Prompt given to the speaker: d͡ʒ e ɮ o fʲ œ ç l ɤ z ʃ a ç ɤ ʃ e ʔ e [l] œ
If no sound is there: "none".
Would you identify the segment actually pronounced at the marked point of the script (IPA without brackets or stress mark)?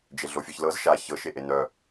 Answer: n